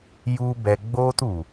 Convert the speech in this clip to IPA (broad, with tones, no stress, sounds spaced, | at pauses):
j u˦ b ɛ˧ ɡ͡b oː˦ t u˨